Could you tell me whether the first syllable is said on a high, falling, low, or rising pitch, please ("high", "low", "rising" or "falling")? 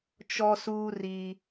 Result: high